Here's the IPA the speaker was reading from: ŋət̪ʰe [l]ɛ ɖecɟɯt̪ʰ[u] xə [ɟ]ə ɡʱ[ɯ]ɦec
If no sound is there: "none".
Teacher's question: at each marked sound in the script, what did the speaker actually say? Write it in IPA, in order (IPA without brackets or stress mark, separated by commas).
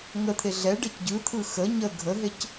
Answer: ɮ, ɯ, ɲ, ə